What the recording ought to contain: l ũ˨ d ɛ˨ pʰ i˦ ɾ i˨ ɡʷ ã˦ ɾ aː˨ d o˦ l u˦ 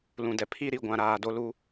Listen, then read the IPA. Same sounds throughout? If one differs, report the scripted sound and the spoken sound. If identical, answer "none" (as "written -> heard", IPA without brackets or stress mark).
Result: ã˦ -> ã˨